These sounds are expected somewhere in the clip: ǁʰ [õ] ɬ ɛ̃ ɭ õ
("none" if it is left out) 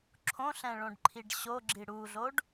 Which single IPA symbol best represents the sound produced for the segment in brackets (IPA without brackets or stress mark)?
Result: õ